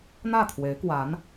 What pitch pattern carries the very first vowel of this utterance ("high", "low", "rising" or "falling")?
falling